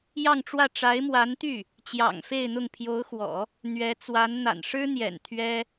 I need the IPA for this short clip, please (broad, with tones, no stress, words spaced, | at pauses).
jɑ˥˧ŋʈ͡ʂwä˥˩ ʈ͡ʂa˧˥ɪ̯mwa˧˥nt̪y˥˩ | t͡ɕjɑ̰˨˩ŋfe˥˧ɪ̯n̪ʊ˥˩ŋ pʰjo˧˥ʊ̯xwɔ̰˨˩˦ | n̪ɥɛ˧˥ t͡swa˧˥nn̪a̰˨˩n ʂɻ̩˥n̪jɛ̰˨˩n t̪ʰɥɛ˥